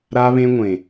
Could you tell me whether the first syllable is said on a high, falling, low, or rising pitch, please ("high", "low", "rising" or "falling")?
high